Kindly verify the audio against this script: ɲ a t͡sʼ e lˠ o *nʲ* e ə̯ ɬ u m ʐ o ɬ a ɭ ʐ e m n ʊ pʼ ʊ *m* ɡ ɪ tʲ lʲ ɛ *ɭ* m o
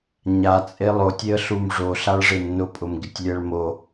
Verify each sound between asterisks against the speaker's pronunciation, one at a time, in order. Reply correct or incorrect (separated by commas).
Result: incorrect, correct, correct